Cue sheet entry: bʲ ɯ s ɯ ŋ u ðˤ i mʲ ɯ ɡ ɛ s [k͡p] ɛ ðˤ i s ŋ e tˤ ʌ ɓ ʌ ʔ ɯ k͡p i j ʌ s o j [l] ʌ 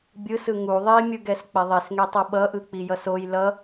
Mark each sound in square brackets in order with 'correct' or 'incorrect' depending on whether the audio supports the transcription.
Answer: correct, correct

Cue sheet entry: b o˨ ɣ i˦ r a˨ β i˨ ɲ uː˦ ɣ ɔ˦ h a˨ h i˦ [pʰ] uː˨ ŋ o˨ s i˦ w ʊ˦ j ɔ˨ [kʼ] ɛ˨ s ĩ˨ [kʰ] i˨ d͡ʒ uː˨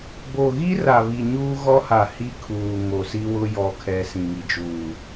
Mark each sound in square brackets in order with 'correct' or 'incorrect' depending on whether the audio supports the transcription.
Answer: incorrect: kʰ, incorrect: kʰ, incorrect: ŋ

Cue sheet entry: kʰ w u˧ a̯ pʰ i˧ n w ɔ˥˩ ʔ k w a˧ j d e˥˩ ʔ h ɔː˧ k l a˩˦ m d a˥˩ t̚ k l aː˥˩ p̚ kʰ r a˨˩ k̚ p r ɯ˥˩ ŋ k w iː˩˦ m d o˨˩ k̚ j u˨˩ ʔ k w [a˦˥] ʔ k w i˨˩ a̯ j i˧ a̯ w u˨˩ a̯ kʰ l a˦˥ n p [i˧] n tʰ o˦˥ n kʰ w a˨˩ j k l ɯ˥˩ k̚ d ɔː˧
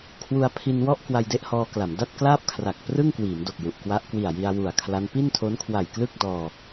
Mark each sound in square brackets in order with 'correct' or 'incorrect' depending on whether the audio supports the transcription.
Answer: correct, incorrect: i˥˩

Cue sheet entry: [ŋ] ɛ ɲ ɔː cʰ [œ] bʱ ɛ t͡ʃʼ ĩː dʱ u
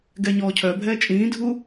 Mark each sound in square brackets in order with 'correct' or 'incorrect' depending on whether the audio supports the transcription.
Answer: incorrect: ɡ, correct

